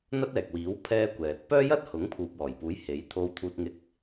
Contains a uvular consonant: no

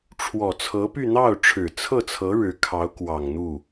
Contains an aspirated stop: yes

